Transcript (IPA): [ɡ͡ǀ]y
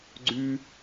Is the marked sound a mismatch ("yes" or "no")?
no